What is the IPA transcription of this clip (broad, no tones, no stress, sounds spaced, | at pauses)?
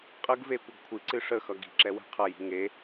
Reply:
qʼ ə ɡ v e kʷ ə ɡ kʷʰ ɨ ǀ ɨ ʂ ə x ʌ ɡ i̤ ǁ ɛ w ɛ̤ qʰ ʌ j i̤ ŋ e